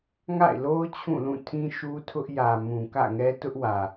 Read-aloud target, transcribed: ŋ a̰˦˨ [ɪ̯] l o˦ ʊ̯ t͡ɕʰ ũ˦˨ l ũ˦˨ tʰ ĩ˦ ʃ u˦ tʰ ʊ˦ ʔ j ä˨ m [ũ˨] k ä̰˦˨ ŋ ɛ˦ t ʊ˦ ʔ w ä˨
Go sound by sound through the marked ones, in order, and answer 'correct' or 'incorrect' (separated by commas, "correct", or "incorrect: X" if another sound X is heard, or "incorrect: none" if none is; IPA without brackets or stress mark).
correct, correct